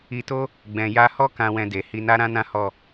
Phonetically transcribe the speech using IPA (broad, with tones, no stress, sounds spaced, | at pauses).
i˧ t o˦ | ɡ͡b ɛ̃˨ j a˧ h ɔ˦ k ã˧ w ɛ̃˧ d e˨ h i˧ n a˦ ɾ ã˦ n ã˦ h ɔ˦˨